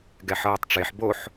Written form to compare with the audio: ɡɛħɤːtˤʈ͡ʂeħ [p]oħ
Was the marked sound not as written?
yes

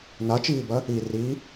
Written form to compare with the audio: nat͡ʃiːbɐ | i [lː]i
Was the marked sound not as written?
yes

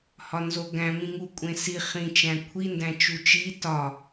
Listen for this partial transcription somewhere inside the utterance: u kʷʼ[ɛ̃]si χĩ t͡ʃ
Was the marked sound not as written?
yes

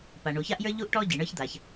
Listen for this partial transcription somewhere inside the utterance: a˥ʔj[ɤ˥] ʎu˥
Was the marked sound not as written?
yes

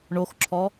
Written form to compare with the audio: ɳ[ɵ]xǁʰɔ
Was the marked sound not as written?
yes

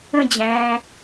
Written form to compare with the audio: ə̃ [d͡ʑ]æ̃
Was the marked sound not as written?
no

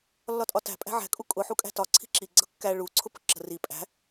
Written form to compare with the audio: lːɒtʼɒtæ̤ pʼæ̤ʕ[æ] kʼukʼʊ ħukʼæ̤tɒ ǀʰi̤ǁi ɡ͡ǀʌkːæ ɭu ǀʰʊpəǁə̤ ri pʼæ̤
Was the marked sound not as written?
yes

